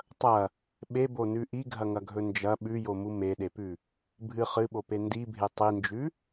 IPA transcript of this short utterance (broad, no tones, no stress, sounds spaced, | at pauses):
tˤ ɐ | ɓ e b o n ʉ ʔ i ɡʱ ɐ ŋ ɐ ɡʱ ɵ n d͡ʒ ɐ ɓ ʉ j o m u m e ɗ e p ʉ | bʱ ɨ χ ɨ ɓ o p e n d i bʱ e tˤ i n d͡ʒ ʉ